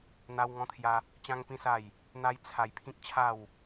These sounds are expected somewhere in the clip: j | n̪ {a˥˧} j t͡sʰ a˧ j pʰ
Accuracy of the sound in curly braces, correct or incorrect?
incorrect